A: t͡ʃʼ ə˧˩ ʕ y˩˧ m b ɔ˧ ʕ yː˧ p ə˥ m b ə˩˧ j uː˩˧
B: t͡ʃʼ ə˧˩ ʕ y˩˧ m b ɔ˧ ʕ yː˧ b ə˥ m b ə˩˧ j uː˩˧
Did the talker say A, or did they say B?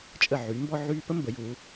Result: A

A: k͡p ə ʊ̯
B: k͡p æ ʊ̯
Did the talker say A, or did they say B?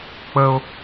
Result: A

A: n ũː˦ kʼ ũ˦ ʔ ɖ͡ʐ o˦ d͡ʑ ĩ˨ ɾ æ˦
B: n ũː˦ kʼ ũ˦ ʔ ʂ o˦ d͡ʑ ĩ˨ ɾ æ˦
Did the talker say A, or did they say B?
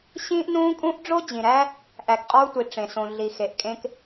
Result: A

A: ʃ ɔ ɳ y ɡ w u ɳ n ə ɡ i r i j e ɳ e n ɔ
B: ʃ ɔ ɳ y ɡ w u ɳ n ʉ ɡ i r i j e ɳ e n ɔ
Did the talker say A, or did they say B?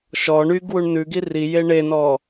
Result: B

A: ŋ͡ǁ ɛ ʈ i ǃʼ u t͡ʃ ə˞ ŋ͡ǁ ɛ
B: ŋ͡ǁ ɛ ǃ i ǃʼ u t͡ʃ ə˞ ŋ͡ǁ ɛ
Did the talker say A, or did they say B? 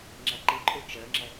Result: B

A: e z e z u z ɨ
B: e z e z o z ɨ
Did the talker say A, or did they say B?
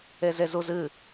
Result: A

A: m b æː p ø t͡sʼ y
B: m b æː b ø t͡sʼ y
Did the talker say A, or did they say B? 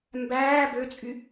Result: B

